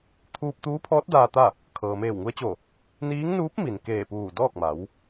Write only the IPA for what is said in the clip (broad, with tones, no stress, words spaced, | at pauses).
t̪ʰuː˧p̚t̪uː˧˥pʰɔː˧˥t̚ daː˧t̪a˥˨ | kʰɤː˩meː˧˩wŋu˧ə̯t͡ɕo˧˩ | niː˧˥ŋ nuː˧˥p̚mi˩n keː˧˩puː˧˩ dɔː˥˨k̚ma˩˧w